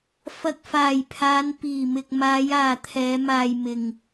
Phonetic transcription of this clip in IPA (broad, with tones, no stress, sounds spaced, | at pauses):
f ɐ˨ k̚ f aː˨˩ j pʰ aː˨˧ n p iː˨˩ m ɪ˨ k̚ m aː˨˧ j aː˨ t̪ʰ ɛː˨˧ m aː˨ j m ɪ˨ ŋ